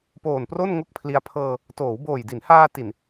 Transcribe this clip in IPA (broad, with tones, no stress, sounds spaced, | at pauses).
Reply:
p oː˨˩ n p r o˥˩ n ŋ o˥˩ k̚ pʰ l i˧ a̯ pʰ ɤː˧ | t oː˩˦ w b oː˨˩ j d i˩˦ n h aː˧ t i˨˩ n